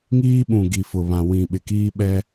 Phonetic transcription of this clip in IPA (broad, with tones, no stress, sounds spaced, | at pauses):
ŋ iː˦ ɓ ũ˨ ɡ i˨ f ʊ˨ β ã˨ w ĩ˨ ɓ ɪ˨ k iː˦ ɓ ɛ˦